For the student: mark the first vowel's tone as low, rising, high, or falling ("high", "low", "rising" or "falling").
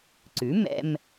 rising